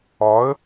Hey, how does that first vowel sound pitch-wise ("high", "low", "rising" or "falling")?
rising